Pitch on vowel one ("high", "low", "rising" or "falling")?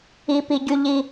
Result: high